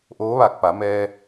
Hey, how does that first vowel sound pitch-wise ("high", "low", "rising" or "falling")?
rising